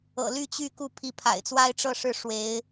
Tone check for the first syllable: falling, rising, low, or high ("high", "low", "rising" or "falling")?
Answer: low